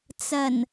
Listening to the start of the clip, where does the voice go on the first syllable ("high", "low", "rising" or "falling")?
low